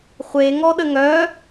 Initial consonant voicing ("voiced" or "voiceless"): voiceless